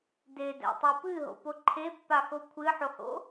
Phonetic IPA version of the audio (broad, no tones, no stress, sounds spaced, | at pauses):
d e d æ̰ tˤ ɨ p ɨ ɦ o̰ p o ǃʰ e pː a x o kʷʰ ɨ ħ o h o̰